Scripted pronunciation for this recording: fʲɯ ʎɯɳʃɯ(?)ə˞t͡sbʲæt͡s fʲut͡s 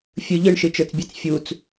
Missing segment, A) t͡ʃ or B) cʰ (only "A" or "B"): A